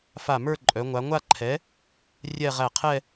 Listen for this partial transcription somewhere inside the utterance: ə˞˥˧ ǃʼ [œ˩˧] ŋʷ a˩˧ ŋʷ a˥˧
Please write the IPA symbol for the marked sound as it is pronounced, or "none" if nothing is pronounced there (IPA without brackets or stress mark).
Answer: œ˩˧